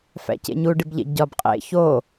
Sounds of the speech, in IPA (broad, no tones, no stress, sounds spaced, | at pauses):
f æ̰ c ḛ ɲ u ɖ i b ʎ ḛ ɟ ɒ b qʼ ḛ ç o